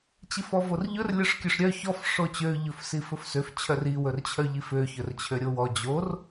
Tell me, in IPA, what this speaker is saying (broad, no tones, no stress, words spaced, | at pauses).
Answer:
t͡ɕifɔvorʎɵr lʲœʂkʲøʂɾʲœ çɔf ʂot͡ɕø ʎɵfsifɵfsøf t͡ɕʰœri wɵrt͡ɕʰœʎifø çɵrt͡ɕʰøɾʲowɔ d͡ʑor